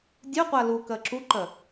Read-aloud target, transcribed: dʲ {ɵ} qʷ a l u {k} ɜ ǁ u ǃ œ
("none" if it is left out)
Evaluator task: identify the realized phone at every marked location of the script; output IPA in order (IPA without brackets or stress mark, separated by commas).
œ, k